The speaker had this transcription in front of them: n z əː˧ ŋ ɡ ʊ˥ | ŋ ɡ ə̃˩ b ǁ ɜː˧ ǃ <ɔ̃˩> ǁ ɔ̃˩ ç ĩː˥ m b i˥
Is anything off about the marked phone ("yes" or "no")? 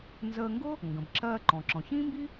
no